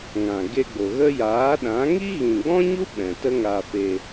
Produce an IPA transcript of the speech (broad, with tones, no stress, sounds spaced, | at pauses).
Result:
ŋ ã˨ ɡ e˧ ɡ͡b o˨ ɣ ə˦ j aː˨˦ ɗ ã˨˦ ŋ i˦ ɣ ĩ˨ ɡ͡b ɔ̃˦ ɲ u˦ ɓ ɛ̃˨ t ə˦ ŋ aː˧ f e˧